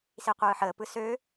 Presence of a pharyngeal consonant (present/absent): present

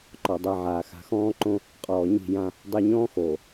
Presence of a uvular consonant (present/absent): present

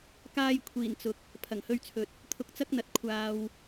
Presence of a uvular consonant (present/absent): absent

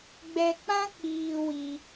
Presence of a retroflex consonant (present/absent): absent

